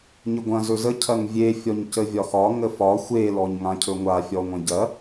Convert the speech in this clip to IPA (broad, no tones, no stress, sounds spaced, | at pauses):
ɲ ə ɡʷ ɐ̃ z ɵ z ə cʰ ɐ ŋ vʲ e fʲ ɔ ɲ c ə vʲ ɒ x ɒ ŋ ə f ɒ xʷ e l ɔ ɲ ŋ ã cʰ ɵ ŋʷ a fʲ ɔ ŋʷ ɐ̃ ɟ ɐ